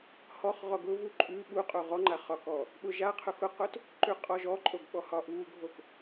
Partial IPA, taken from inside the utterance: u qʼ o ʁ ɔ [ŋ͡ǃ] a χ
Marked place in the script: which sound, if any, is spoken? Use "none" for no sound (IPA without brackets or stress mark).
ŋ͡ǃ